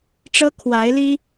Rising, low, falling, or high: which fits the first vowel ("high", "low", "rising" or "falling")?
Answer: high